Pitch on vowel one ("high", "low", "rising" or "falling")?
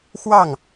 falling